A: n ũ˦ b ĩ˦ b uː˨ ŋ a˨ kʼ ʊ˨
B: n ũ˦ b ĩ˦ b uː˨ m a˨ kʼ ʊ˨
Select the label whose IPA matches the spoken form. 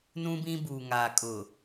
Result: A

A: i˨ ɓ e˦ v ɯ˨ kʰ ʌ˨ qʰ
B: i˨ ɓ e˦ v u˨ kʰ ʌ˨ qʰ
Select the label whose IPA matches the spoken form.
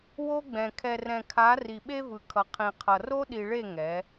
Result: A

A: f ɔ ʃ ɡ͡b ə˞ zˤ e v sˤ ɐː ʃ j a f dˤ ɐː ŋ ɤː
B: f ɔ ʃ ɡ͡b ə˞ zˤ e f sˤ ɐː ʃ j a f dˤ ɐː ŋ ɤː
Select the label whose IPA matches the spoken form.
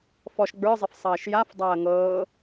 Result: B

